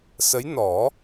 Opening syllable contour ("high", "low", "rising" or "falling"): rising